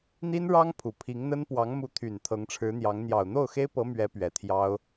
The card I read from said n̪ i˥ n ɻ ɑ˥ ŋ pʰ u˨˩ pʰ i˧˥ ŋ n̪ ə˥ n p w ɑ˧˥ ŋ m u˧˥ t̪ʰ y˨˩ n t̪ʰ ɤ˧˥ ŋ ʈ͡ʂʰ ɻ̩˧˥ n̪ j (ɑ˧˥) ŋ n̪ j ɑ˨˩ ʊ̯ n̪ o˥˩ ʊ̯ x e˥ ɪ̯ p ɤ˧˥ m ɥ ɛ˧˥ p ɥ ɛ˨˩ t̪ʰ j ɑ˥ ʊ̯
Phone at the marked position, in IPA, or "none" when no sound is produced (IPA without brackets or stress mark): ɑ˧˥